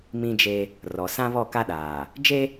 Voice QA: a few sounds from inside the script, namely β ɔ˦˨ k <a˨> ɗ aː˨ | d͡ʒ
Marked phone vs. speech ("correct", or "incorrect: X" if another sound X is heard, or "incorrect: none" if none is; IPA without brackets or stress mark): incorrect: a˦